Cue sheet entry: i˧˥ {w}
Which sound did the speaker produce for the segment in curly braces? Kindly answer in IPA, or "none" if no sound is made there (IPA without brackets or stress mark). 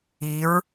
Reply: ɹ